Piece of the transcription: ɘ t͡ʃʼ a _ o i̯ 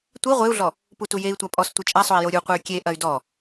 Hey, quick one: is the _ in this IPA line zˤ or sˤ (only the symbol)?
sˤ